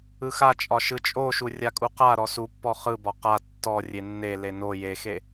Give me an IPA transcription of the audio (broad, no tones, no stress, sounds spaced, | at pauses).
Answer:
ɯ x a t͡ʃʼ ɒ ʃ ɯ t͡ʃʼ o ʃ u rʲ a kʼ u q a ɾ ɔ s u pː ɔ χ ɯ b ɒ q a tː ɔ rʲ e nː e l e n o j e x e